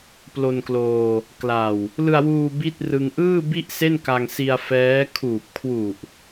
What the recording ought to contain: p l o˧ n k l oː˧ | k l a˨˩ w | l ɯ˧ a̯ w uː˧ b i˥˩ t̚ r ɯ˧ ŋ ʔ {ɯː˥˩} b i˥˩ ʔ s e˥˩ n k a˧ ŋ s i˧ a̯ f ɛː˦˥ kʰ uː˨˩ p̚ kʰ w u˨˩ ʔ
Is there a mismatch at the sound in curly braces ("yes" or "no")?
no